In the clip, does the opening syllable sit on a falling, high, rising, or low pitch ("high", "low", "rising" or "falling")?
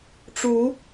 rising